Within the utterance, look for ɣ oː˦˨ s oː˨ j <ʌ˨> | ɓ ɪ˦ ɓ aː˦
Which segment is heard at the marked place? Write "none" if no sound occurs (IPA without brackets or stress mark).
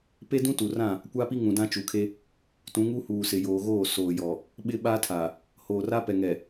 ɔ˨